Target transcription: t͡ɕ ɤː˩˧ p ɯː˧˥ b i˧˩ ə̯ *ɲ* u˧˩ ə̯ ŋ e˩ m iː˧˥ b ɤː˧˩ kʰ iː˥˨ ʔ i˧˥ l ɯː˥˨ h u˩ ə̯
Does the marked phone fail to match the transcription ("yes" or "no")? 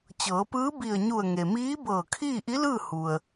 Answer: no